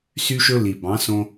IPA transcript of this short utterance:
sy˧ʃɵ˧ li˨bɑ̃˨˦sõ˧

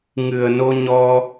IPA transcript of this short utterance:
ŋɨ˨˩ə̯ no˧ɲɔ˧

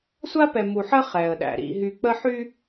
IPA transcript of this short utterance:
sʷa˦pɛ˨mu˨ħə˦ χɛ˨ə̯ɗæ̰˨ɾḭ˦ɦy˦ k͡pə˦ħy˦

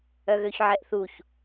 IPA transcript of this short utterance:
œɣøçʕɛʔθuç

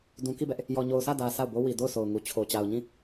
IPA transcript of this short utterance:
dũ˨ki˦˨bɛ˦ʔ | jɔ˨ɲo˨ʊ̯sä˦˨dä˨ sʰa˦˨ʊ̯bo˦ wi˨ do˦˨ʊ̯so˨ʊ̯ŋu˨t͡ɕʰo˨ t͡ɕa˨ʊ̯ɲĩ˦˨

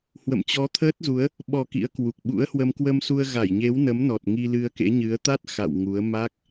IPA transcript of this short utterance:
hwə̰˧˨mt͡ɕɔ˨˦t̪ʰəː˦˥t̚zu˨˦ə̯ | ɓɔ˨˩ kḭ˧˥ə̯kwu˨˩k̚ ɓṵ˧˥ə̯hwə˧m kwə˧msu˧ə̯ɣa˧˩jɲe˨˦w nə˨˦mnɔ˨˩t̚ ŋi˧lɨ˧ə̯kḛ˧˥ɲɨ˨˦ə̯ t̪a˦˥t̚ xa̰˧˨w ŋu˨˦ə̯ ma˦˥k̚

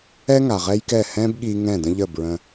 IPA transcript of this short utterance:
ɛ˦ŋa˨ ʁɛ˦jkɛ˦˨ hɛ̃˦bɠi˧ ŋɛ̃˦˨də̃˦ʎə˦˨bɹə̃˧

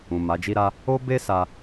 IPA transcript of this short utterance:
ũ˨ ma˨˦d͡ʒi˦ɾa˦ | o˦ be˦sa˧

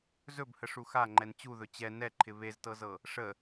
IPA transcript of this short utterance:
zɵbhəʂu xaŋ͡ǃɛn t͡ɕuðɵ t͡ɕɛ nɛǃʰɪ βeztɤzɤ | ʂə

